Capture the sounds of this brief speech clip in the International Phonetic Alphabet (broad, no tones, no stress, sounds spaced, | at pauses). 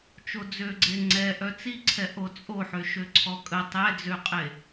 t͡ʃ o d͡z ø ɡ͡ǀ e ŋ͡ǀ ɛ ʔ œ t͡s i ǀʰ ɛ ʔ o t͡sʼ o ħ ø ʃ ø ǀʰ ɔ kʼ ə tˤ ɛ d͡z ø qʼ e